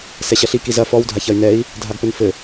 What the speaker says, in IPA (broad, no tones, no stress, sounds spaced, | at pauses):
s ɛ ɕ ɐ ɬ i k i z ɐ f ɔ w dʱ a ç ɐ y̯ n ɛ i̯ | dʱ a ɡ p ɘ n f ɘ